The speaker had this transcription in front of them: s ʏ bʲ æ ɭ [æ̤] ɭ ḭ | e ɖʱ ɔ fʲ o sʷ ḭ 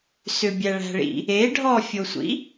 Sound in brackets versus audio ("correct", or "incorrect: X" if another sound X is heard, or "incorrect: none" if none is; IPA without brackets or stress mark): correct